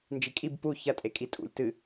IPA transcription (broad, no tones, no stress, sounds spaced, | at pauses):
n d͡ʒ i kʼ i b p u ç ɐ tʼ e kʼ i tʼ ṵ lʲ t ɨ